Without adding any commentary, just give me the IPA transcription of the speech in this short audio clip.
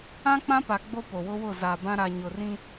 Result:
ã˦ k͡p ã˦ p a˨ ɡ͡b o˦ p o˨ w ʊ˦ w ʊ˦˨ z a˨ b ã˦ ɾ a˨ ɲ ʊ˨ r ĩ˦

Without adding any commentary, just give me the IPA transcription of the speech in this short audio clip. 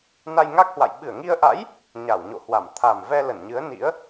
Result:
n a˧ j ŋ a˦˥ k̚ h w a̰˧˨ j ɓ ɨ˧˩ ə̯ ŋ i˧ ə̯ ʔ a̰˧˥ j | ɲ a˧˩ w ɲ o̰˧˨ h w a˧˩ m t̪ʰ a˨˩ m v ɛ˧ l ə˧˩ n ɲ ɨ˨˦ ə̯ n ḭ˧˥ ə̯

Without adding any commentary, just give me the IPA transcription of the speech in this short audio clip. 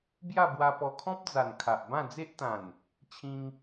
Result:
b j a˥˧ b w a˧ p ɔ˧ kʰ ɔ̃˦ p̚ d͡z a˨˩ n kʰ a˨ ʔ b ã˥˧ d͡z e˦ ʔ t̪ ã˨˩ n | t͡ɕʰ ĩ˧ ŋ

